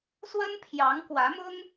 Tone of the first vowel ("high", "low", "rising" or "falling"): high